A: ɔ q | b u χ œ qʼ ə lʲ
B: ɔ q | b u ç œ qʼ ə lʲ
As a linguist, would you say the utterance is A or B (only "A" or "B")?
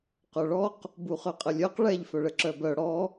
A